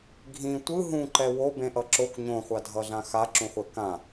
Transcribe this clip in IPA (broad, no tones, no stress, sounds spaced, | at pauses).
ɡʱ ĩ tʷ ɯ ɦ ũ ǃ ɛ w o b ẽ ʔ ʌ ǁ o k ɲ õ χʷ a dʱ ʌ ɮ ã x a ǁ ũ χʷ ɛ k ã